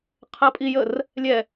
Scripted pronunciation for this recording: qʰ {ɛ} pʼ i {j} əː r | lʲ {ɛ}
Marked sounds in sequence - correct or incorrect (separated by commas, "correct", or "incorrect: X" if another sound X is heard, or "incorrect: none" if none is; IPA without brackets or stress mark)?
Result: incorrect: ɜ, correct, correct